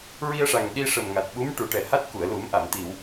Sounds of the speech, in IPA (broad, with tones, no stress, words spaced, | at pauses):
ɹi˧ə̯ʂa˨˩ŋɗi˧ ʂə˨˩mŋa˨˩t̚ɓu˧˥m ʈu˨˩˦ʈɛ˨˩ha˦˥t̚ku˨˩˨ə̯ lu˨˩˦mʔa˨˩˨m t̪i˨˩˨w